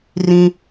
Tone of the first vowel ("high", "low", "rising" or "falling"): high